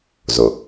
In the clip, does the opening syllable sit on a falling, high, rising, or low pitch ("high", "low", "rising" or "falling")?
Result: low